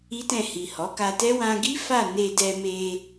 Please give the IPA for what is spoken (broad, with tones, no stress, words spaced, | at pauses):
i˦tɛ̃˦˨ hi˨hɔ˨˦ka˧tɛ˦ wã˧ɡi˦ fa˦˨ ne˧dɛ˧me˧